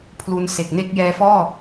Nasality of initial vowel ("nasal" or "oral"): oral